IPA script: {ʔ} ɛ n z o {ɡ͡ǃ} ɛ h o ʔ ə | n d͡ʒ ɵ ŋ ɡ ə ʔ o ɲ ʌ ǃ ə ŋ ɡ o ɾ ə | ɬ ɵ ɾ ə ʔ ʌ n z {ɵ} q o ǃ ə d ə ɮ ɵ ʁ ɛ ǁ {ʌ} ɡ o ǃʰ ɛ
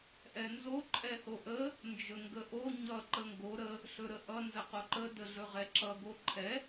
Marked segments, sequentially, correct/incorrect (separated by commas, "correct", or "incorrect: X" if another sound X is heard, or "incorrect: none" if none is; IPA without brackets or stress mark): correct, incorrect: ǃʼ, incorrect: ə, correct